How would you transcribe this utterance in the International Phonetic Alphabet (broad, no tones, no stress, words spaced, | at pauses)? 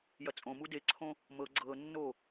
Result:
jɐt͡sʼõmu deǀʰõ | mɤ ɡ͡ǀɤnːo